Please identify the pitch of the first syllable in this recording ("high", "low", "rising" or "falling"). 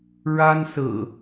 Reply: high